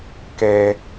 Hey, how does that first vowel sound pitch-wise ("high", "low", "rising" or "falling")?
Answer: low